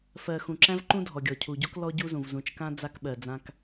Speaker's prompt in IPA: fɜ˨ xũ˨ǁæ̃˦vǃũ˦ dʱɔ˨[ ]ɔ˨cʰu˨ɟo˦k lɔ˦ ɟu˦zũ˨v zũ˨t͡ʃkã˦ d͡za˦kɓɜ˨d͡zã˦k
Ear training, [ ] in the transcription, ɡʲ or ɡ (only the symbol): ɡʲ